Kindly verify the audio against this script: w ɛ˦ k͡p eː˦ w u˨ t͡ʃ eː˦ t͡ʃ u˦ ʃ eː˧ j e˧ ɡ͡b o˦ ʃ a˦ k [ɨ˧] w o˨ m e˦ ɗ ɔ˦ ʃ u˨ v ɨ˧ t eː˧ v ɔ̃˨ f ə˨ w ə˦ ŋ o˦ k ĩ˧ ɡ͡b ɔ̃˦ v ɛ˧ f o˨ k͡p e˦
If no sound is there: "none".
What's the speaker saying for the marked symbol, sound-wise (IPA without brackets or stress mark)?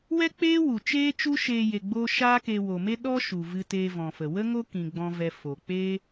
e˧